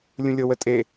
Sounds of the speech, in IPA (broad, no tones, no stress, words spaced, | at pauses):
lʲũlʲɤwətʼe